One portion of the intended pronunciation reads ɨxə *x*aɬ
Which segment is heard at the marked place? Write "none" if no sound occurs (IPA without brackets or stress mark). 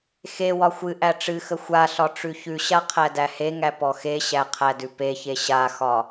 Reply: xʷ